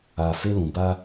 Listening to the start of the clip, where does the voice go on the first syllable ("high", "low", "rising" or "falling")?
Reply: low